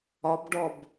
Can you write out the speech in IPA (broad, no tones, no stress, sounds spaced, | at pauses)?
ɒ b ɖ ɔ b